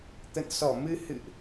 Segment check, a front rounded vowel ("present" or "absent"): absent